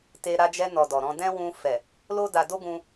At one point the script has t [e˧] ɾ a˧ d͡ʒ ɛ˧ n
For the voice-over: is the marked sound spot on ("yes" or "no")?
yes